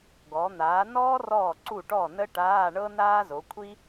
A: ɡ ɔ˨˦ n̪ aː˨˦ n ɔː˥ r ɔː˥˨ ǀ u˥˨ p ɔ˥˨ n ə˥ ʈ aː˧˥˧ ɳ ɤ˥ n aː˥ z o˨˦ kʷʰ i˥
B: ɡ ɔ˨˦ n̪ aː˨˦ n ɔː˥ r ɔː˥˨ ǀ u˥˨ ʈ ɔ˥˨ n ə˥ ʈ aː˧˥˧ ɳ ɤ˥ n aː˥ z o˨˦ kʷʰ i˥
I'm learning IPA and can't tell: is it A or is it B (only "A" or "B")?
B